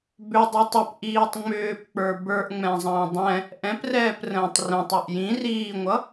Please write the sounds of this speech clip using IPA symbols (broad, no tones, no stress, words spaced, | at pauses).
bʏdˤə˞tˤ əpʔiːtˤ ŋ͡mʏːpk͡pə˞ bə˞ʔŋ͡mɛ̃zˤə̃ː dˤɛ̃ | ʔɛ̃prɛːprə̃ːtˤ rɛ̃tˤɛʔ jĩriːŋʷʌ